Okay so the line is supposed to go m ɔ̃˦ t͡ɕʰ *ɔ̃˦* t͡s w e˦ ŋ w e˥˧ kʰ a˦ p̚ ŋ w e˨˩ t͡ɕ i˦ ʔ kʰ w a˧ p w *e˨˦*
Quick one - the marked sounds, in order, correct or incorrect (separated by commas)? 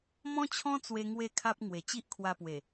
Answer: correct, incorrect